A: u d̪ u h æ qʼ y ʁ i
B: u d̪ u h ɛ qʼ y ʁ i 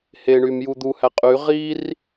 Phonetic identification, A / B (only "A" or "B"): A